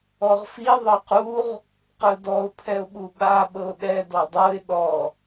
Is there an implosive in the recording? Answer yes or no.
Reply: yes